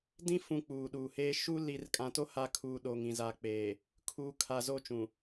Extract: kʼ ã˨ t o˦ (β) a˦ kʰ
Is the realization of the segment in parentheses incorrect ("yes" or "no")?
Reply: yes